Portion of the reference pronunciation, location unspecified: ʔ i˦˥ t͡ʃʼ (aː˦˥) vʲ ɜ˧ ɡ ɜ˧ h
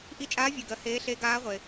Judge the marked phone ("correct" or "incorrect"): correct